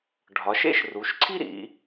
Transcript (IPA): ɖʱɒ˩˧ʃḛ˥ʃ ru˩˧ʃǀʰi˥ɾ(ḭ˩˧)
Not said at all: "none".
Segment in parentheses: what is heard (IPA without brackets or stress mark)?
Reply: ḭ˩˧